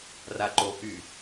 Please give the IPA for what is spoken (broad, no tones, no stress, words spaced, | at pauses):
raǃoʔy